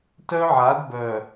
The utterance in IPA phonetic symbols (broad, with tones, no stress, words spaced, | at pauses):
tœ˦ʕa˨˦dbœ˨